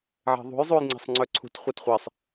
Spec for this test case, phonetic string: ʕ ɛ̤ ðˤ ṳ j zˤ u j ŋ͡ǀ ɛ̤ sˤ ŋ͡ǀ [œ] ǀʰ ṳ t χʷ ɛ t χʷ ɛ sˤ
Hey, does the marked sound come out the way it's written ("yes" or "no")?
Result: yes